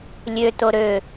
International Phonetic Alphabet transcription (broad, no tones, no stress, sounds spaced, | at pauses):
lʲ ø t o ɾ ø